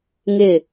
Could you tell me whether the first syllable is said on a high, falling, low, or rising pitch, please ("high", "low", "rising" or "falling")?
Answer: falling